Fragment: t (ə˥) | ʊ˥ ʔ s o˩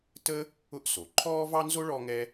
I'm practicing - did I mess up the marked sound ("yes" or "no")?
no